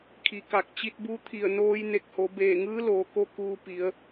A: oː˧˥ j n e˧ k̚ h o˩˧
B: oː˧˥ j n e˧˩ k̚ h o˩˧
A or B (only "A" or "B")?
B